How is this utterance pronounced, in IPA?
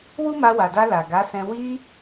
w u˦ m a˧ w a˨ d a˧ l a˨ ɡ a˨˦ s ɛ̃˧ w i˧

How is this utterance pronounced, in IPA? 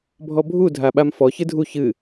bʱ ɔ bʱ u dʱ a ɓ a m f ɔ ç ɨ dʱ u ç ɨ

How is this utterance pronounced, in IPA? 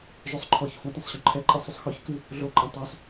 ʒ ø sˤ ǃʰ ɔ ç f õ t ẽ sˤ ɕ œ̃ ǃʰ ɛ ǃʼ ɛ sˤ y sˤ x ø ç k ʉ | ɮ o ǃʼ ɛ̃ tˤ æ sˤ

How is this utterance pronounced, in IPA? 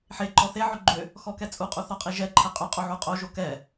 ħ e ǃ ɔ θ e ʕ ʏ ɡ͡ǃ ʏ | x ɔ k ɛ t͡sʼ u qʼ u θ ɔ qʼ i ʒ ɛ ǃʰ ɛ qʼ ʏ qʼ o ʕ u qʼ o ʒ o k ɛ

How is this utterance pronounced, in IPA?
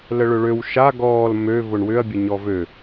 l ə ɭ ʏ ɭ ø w ʃ a ɡ ɔː l m ø v ʊ ɳ w ʏ ɐ̯ bʲ ə ɲ ɔ v ø

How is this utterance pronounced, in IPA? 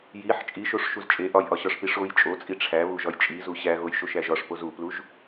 j i ħ t͡ʃʼ i ʃ o ʂ ʃ u z t͡ʃʼ e ʔ ɒ j ʔ ɒ ɕ ɒ ʂ p i ʂ o j t͡ʃʼ o t͡sʼ i ʈ͡ʂʰ æ β u ʒ ɒ j t͡ʃʼ i z u ɕ æ ɣ o j ʃ o ʃ æ ʒ ɒ ʂ p o z u p l u ʒ

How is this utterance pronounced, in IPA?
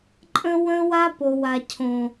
ǃʼ ə̃˦ w ə̃˦ w a˦ p o˨ w a˨ cʰ õ˨

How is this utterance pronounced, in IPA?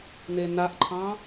n̪ e n̪ a ʔ ǃʰ ɑ̃

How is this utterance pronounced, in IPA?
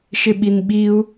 ʃ ɪ ɓ i n ɓ i u̯

